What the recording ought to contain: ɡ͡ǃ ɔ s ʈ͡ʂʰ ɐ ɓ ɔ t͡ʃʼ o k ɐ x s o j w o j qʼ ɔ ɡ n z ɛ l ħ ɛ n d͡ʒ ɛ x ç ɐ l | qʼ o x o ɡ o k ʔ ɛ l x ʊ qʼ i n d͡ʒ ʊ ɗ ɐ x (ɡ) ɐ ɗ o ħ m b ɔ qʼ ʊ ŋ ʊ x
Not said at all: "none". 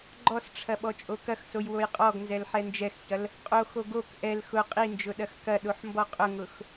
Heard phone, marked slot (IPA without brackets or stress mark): k